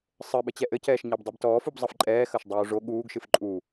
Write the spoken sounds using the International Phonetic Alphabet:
sˤ ɘ ɓ ɘ t͡ɕ ɛ ʔ ɘ c ɛː ʃ ɲ a b dˤ ɛ b t ɔː f u b zˤ ɐ f ǃʼ ɛː x ɐ ʃ dˤ uː ʐ o ɠ uː ɡ ʃ ɨ f ǃʼ u

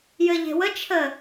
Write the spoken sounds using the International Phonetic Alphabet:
j ɘ ʎ e̤ w ə t͡ʃʰ ə

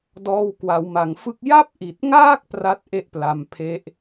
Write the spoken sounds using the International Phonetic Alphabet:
d ɔː˧ w k w a˩˦ w m a˩˦ ŋ f ɯ˥˩ k̚ j a˥˩ p̚ ʔ i˨˩ t̚ ŋ aː˥˩ k̚ p r a˥˩ t̚ ʔ e˥˩ ʔ p l a˧ m pʰ e˦˥ ʔ

